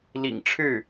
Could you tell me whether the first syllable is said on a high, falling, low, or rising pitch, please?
low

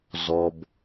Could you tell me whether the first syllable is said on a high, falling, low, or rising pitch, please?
low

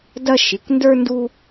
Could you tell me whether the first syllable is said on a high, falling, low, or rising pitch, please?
high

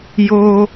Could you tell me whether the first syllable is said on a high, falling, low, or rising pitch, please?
high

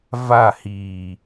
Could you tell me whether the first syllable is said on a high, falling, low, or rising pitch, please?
falling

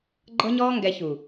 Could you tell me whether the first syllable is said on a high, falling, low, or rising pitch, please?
high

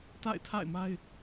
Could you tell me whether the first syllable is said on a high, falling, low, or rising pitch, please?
falling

